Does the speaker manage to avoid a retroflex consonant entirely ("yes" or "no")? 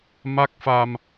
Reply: yes